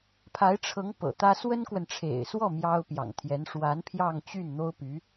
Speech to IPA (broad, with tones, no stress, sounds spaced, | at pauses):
pʰ a˧˥ ɪ̯ ʈ͡ʂʰ ɤ˧˥ ŋ p ɤ̰˨˩ t̪ ä˥ s w ə˥ n k w ə˨ n ʈ͡ʂʰ ḛ˨˩ ɪ̯ s w ɔ˥˩ m j ɑ˥ ʊ̯ p j ɑ̰˨˩ ŋ t̪ʰ j ɛ˧˥ n ʂ w a˧˥ n pʰ j ɑ˥˧ ŋ t͡ɕ y˥˩ n n̪ o˥ ʊ̯ p y˧˥